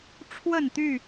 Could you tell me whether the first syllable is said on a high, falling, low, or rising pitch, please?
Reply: falling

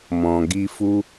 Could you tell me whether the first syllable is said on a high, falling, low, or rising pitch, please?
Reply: low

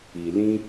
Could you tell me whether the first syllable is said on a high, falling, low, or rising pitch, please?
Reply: low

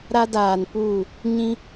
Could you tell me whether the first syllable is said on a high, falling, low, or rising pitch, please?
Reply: high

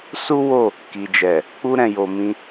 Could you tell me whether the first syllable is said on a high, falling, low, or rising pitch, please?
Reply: high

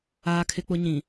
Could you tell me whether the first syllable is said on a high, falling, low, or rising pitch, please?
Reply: high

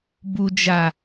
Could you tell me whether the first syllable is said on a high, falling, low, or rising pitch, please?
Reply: low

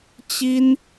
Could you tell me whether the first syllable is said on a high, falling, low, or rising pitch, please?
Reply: high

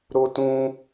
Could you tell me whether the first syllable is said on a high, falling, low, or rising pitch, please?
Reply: high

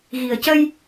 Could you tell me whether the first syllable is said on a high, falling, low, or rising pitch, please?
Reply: low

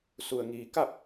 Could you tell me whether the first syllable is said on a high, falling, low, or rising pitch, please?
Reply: low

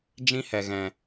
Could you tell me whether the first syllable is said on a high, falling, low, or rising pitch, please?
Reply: high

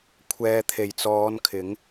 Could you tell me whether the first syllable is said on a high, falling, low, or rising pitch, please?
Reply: low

